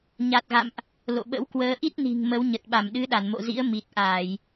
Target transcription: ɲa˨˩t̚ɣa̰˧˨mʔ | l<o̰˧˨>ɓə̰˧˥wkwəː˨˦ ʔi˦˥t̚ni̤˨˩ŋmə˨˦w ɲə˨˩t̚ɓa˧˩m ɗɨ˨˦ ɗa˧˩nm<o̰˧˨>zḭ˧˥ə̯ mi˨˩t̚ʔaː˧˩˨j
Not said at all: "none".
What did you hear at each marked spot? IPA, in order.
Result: o̰˧˨, o̰˧˨

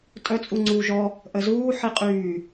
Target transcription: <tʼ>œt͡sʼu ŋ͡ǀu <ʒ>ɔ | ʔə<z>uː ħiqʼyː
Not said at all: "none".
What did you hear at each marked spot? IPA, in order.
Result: tʼ, ʒ, z

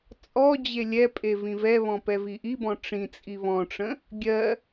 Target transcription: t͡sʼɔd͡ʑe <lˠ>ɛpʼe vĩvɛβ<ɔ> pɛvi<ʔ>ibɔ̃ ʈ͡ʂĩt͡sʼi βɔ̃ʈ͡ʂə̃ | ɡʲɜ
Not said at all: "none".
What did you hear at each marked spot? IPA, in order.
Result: lʲ, ɔ̃, ʔ

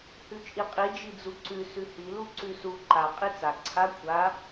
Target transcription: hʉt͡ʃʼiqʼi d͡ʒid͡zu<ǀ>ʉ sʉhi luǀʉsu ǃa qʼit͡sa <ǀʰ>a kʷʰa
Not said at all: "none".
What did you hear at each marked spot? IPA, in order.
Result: ǀ, ǀʰ

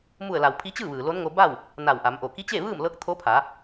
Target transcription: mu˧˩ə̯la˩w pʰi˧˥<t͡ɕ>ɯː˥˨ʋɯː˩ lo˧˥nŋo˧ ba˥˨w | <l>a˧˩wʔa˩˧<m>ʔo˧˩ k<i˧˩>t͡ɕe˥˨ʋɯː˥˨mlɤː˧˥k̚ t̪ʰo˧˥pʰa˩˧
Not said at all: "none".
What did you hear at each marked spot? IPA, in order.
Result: t͡ɕ, n, m, i˧˥

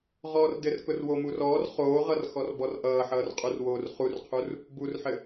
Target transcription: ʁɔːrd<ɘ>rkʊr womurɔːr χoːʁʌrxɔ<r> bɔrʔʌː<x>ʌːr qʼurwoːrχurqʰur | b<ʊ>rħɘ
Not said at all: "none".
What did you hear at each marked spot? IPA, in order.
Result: ɘ, r, ħ, u

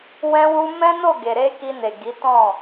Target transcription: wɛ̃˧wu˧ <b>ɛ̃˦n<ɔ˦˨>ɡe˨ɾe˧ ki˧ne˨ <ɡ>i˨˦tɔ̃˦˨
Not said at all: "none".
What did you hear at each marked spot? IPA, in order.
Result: m, o˦˨, ɡ

